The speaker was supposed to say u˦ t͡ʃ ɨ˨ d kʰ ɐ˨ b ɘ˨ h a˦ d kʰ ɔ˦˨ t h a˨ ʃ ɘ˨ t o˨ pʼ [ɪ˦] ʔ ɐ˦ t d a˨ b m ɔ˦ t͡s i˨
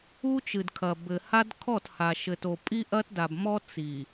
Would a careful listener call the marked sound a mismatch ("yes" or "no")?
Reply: yes